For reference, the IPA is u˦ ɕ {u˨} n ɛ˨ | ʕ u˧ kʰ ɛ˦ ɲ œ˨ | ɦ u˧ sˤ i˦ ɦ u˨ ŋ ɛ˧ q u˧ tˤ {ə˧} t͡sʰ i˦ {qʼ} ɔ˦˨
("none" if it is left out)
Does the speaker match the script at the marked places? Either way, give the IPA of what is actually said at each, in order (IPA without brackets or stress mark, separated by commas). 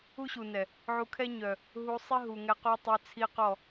u˨, œ˧, q